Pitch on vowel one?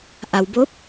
low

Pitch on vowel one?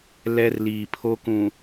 high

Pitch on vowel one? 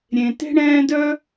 low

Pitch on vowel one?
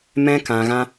high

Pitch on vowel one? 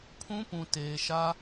high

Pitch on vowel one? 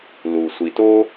low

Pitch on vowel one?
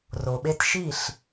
low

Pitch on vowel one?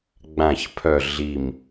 low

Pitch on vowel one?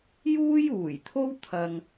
high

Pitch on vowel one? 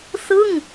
falling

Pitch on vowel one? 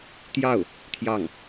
falling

